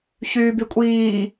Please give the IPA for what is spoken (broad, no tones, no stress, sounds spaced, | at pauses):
ç yː b y kʷʼ iː